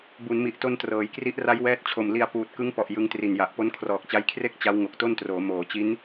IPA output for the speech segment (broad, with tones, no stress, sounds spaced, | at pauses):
b u˩˦ n m i˨˩ ʔ t o˧ n t r ɤː˩˦ j k r i˦˥ ʔ r a˦˥ j w ɛː˦˥ t̚ t͡ɕʰ o˨˩ m l i˧ a̯ p uː˨˩ t̚ k ɯ˦˥ ŋ p ɔ˨˩ ʔ j ɯ˦˥ ŋ t r i˨˩ n j a˨˩ ʔ p o˦˥ n kʰ r ɔː˨˩ k̚ t͡ɕ a˦˥ j kʰ r e˥˩ k̚ t͡ɕ a˦˥ w ŋ o˨˩ k̚ t o˥˩ n t r oː˩˦ m oː˩˦ t͡ɕ i˦˥ n